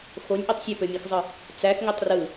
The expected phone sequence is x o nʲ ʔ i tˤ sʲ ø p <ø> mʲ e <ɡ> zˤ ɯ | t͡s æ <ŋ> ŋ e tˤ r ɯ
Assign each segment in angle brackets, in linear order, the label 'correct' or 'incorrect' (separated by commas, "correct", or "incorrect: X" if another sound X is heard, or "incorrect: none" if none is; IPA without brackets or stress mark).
correct, incorrect: x, incorrect: x